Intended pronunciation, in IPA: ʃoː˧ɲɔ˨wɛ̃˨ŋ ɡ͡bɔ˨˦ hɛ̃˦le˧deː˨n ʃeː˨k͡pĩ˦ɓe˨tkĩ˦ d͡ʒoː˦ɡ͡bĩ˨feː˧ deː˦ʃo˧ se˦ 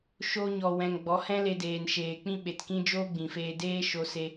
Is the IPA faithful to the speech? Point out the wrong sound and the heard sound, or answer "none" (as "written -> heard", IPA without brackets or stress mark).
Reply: none